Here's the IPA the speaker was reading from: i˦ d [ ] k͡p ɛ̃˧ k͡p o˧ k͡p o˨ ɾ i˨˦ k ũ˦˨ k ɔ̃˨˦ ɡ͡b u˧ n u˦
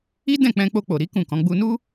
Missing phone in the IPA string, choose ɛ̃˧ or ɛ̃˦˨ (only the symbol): ɛ̃˦˨